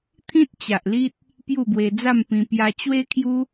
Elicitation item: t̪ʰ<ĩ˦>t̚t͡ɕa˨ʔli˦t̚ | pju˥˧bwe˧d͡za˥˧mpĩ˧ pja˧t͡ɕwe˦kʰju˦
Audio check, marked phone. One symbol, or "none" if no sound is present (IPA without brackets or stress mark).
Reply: ĩ˦